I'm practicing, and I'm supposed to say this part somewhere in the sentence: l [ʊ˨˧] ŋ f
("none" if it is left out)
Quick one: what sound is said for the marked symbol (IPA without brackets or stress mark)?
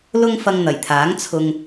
ʊ˥